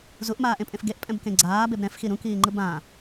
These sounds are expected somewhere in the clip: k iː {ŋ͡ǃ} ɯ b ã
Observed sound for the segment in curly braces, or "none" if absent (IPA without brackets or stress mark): ŋ͡ǃ